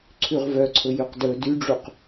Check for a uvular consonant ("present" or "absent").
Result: present